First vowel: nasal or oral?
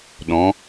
nasal